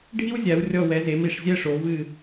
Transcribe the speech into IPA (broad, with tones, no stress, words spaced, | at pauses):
ɖʱi˥wzʲa˩˧wrʲɔ˧˩wɛ˩˧ ze˩˧mi˧˩ʂzʲɛ˥˧ʂo˩˧ vɨ˧˩